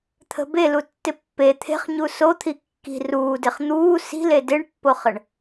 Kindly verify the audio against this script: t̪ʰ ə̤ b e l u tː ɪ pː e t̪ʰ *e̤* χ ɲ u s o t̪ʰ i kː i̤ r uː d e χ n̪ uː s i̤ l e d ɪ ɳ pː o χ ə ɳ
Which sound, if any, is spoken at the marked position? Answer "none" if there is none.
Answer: e̤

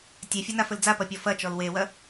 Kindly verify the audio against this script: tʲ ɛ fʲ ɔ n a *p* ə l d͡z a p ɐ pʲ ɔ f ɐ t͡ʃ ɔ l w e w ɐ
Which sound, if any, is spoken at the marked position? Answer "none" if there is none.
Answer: f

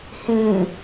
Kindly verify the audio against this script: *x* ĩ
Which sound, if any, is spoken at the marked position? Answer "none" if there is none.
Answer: h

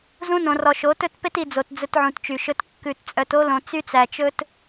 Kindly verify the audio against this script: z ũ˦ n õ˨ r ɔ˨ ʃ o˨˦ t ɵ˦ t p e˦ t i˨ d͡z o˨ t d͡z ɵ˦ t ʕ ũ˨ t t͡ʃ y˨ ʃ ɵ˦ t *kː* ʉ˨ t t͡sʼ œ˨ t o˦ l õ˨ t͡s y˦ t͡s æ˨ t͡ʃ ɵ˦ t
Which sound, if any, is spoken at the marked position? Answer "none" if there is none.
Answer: kː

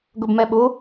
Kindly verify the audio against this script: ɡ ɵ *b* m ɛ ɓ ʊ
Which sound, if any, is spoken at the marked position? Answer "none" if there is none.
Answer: b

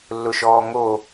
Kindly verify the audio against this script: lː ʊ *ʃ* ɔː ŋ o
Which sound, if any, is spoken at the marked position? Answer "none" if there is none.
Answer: ʃ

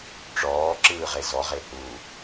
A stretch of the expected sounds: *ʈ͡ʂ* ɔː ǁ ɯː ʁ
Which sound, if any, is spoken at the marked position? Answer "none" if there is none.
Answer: ʈ͡ʂ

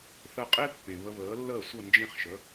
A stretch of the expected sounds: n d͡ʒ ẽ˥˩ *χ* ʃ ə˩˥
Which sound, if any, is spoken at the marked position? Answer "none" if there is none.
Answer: χ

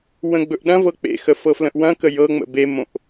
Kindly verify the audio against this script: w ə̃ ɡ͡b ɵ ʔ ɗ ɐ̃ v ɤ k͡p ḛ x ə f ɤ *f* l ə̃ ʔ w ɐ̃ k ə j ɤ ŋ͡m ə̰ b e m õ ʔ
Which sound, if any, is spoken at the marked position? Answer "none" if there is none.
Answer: f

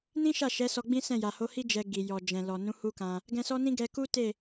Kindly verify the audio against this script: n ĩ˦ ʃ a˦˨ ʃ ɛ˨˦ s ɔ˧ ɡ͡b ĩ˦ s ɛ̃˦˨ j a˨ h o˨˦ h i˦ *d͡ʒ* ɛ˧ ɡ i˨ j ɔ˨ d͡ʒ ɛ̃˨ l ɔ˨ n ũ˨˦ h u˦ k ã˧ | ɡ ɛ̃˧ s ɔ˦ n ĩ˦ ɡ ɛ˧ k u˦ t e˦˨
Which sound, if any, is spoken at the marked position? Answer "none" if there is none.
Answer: d͡ʒ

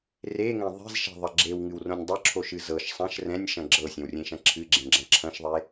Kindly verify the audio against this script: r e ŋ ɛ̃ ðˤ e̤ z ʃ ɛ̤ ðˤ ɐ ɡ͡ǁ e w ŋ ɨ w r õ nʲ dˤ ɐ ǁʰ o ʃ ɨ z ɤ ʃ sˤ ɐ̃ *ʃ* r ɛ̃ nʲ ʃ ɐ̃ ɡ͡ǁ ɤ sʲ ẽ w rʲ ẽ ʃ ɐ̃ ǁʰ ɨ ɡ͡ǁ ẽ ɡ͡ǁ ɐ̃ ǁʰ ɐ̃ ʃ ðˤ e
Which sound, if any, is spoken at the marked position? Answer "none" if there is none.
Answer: ʃ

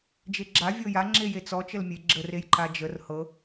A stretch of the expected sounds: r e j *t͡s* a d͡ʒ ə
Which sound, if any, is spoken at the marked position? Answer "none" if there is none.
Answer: ǃ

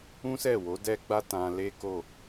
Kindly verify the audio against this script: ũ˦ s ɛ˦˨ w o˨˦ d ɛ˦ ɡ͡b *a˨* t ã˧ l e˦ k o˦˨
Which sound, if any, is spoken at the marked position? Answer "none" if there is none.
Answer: a˦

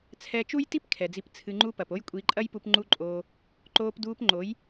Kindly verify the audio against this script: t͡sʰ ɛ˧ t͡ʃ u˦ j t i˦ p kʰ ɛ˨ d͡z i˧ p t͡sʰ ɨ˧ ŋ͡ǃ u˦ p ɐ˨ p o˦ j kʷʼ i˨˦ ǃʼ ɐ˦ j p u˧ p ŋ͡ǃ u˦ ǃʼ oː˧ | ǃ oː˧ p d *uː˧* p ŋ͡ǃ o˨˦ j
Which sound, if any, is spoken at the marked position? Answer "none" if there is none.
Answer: uː˧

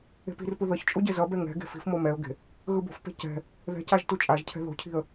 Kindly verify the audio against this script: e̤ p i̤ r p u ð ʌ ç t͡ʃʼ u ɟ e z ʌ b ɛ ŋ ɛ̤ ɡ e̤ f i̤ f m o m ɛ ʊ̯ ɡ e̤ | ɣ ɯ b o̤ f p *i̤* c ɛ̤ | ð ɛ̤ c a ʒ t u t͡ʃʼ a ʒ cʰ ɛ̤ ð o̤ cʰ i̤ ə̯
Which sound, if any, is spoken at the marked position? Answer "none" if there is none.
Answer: e̤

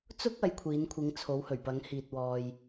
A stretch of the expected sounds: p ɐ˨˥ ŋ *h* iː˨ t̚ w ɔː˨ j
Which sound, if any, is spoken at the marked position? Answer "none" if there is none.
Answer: h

